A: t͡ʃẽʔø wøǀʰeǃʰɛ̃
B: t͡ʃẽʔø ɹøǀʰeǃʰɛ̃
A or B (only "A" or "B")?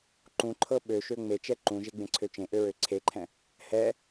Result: B